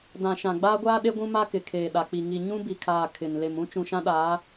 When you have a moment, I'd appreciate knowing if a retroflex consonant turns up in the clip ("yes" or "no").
no